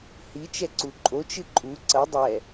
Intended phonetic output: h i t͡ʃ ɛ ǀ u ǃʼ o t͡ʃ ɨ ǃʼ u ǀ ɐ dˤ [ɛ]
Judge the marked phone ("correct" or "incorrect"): correct